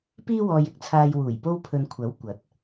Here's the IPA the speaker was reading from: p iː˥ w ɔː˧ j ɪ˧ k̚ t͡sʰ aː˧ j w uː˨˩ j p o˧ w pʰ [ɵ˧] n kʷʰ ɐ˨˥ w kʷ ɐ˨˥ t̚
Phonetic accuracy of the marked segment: incorrect: ɵ˨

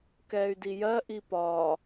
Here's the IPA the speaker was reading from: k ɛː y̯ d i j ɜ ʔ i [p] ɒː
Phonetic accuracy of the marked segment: correct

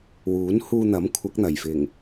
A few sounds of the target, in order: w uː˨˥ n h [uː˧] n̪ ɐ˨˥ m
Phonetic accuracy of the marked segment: correct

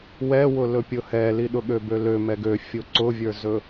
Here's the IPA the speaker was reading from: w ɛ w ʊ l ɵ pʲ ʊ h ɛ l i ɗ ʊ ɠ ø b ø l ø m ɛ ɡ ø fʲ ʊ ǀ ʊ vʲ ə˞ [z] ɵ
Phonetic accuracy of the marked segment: correct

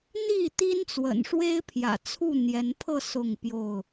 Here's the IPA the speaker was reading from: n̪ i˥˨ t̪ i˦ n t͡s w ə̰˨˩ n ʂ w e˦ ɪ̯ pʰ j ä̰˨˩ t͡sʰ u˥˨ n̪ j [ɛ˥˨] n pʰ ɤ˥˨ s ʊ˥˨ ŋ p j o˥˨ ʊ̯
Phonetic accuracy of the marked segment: incorrect: ɛ˨˦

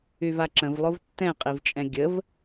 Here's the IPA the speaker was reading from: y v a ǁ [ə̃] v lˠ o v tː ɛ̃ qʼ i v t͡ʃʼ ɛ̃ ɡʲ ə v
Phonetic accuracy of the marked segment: correct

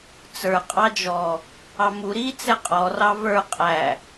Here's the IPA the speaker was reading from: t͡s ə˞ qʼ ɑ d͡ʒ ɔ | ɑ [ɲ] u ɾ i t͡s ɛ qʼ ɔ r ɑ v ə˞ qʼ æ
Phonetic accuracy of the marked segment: incorrect: m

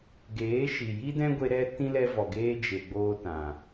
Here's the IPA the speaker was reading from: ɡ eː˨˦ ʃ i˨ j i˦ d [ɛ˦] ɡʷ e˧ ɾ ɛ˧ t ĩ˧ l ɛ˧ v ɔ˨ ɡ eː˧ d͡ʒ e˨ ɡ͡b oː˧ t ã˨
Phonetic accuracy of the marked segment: incorrect: ɛ̃˦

